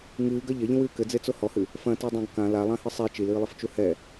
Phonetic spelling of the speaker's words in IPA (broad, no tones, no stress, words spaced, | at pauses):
ŋɨːɡɐ ʎɐʎĩwɨː kɘd͡zet͡so hɔhɨ | fɐ̃tedˤãɡ kã lalˠãhɨ sˤe t͡ʃilɨːlˠɘft͡ʃu hɛ